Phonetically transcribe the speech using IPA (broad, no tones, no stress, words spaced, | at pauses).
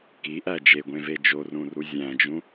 kiʔæ d͡ʒeɡʷẽve d͡ʒorũru zʲæ̃d͡ʒũ